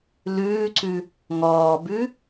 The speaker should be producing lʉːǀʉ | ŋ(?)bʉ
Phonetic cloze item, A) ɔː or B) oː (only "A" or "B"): A